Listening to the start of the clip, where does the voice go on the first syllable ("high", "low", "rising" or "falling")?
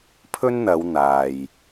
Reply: high